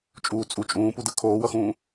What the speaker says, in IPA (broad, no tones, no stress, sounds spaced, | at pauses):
t͡ʃʼ uː t͡sʼ u t͡ʃʼ ũː p u d ɯ kʰ oː w ʌ x ũː